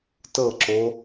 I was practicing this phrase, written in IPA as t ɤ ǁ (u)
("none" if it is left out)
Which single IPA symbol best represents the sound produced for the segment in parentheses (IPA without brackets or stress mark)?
o